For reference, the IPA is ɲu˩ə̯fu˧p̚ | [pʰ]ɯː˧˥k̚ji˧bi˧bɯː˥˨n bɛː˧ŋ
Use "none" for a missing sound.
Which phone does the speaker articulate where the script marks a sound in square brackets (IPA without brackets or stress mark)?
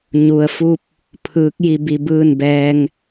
pʰ